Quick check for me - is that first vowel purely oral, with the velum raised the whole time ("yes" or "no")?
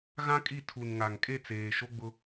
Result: no